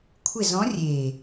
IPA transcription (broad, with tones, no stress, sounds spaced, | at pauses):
kʷʰ ɪ˦˨ z ɔ̃˧˥ rʲ e˨˩